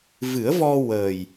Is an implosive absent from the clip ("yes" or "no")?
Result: yes